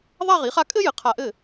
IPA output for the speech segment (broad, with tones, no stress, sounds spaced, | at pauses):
ðˤ a˥˧ ʁ i˩˥ χ a˥ kʼ ɘ˥ j ɘ˩˥ qʰ a˧˩ ʔ ɘ˥˩